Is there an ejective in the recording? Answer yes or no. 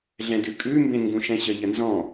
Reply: yes